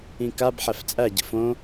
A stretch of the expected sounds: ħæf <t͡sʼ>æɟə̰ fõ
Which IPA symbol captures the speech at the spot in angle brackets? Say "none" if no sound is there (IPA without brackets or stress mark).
t͡sʼ